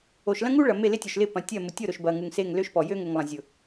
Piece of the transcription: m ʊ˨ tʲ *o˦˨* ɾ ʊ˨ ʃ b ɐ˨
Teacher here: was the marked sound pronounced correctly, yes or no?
yes